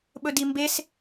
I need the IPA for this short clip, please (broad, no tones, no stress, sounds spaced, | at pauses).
ɓ ɵ d i m b e s